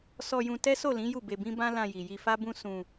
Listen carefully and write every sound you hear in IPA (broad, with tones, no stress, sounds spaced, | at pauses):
s ɔ˧ j ũ˧ t ɛ˦ s o˦˨ l ĩ˨˦ j u˦˨ b e˧ b ĩ˦ b ã˦ l ã˧ j i˨ j i˧ f a˦ b ũ˦ s ũ˧